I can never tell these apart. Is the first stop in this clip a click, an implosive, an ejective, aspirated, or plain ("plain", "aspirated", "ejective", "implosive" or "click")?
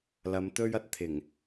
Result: plain